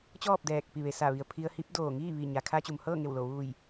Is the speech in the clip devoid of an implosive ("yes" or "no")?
yes